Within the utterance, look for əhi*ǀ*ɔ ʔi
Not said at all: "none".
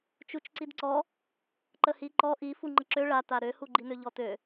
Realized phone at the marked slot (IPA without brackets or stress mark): ǃ